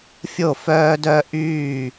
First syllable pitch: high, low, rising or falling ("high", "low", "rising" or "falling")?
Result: falling